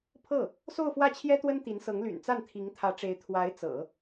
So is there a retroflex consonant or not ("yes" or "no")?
yes